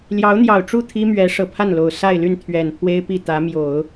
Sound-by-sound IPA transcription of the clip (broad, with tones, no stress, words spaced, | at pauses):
ljɑ˧˥ʊ̯n̪jɑ˨˩ʊ̯ʈ͡ʂu˥˩ t̪ʰi˥mɥɛ˧˥ ʂɤ˨˩ pʰa˥˩nlo˨˩ʊ̯ sa˥˧ɪ̯ly˥˩n t̪ʰɥɛ˨˩npʰwe˥ɪ̯ pi˥˩t̪ä˧˥mjo˨˩˦ʊ̯